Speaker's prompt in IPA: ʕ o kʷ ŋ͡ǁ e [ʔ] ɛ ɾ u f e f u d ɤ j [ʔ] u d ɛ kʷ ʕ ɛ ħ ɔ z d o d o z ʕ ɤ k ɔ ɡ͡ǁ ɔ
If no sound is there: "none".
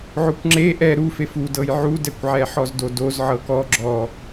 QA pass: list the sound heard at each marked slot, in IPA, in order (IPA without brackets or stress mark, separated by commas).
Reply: ʔ, ʕ